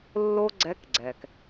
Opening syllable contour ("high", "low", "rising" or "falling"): high